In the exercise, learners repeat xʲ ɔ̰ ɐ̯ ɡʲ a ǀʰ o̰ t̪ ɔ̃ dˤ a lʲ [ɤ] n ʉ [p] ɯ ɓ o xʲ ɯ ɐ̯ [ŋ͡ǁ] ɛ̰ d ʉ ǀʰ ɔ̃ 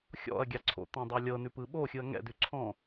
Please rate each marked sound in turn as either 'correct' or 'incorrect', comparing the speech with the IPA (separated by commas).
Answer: correct, correct, incorrect